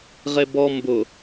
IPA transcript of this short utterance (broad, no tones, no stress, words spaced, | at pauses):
ʁebɔ mbʊ